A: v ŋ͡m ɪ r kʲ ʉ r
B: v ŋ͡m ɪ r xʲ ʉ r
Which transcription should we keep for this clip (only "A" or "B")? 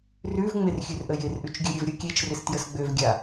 B